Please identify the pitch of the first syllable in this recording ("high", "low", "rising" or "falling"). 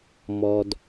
low